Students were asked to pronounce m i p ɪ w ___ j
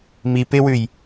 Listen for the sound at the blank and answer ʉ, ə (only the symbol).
ʉ